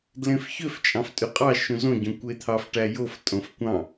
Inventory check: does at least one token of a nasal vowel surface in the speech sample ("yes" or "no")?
yes